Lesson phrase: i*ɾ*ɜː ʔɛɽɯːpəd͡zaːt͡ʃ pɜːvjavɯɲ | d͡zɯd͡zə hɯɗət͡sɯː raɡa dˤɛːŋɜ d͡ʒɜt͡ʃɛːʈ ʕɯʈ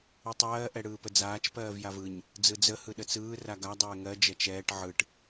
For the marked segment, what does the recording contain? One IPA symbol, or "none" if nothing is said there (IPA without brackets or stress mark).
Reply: tˤ